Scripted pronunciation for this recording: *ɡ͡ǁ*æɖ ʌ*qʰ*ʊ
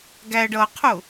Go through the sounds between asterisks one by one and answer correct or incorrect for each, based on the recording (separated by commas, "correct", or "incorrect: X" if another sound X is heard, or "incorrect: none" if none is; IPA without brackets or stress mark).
incorrect: ɡ, correct